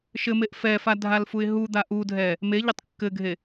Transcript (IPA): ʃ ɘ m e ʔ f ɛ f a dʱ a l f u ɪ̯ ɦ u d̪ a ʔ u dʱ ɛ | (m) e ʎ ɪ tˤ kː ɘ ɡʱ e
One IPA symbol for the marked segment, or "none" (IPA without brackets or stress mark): m